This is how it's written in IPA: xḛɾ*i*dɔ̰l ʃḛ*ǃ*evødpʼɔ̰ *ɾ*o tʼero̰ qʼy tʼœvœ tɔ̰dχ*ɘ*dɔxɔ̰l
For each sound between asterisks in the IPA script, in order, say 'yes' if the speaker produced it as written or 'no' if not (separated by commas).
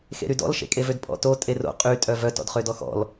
no, no, no, no